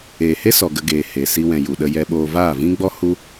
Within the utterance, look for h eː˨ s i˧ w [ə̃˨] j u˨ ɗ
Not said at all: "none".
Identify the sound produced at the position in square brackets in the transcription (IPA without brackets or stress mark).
ɛ̃˨